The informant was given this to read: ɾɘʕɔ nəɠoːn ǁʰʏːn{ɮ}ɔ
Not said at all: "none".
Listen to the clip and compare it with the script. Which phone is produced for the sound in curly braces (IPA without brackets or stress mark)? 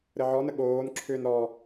ɾ